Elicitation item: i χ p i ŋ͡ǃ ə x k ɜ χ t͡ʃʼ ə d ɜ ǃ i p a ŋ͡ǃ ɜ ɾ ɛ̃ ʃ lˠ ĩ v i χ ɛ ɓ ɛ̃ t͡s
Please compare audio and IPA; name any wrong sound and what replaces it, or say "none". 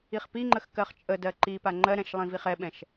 t͡s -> ʃ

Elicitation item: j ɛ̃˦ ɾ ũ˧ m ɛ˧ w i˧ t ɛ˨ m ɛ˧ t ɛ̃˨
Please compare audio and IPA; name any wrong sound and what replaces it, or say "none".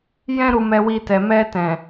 ũ˧ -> u˧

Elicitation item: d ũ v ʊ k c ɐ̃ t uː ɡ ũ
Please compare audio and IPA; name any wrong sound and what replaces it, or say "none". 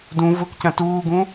none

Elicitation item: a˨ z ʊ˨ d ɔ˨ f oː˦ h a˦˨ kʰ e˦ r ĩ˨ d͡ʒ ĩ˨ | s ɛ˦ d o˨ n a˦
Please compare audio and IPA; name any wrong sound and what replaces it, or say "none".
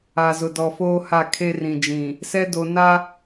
none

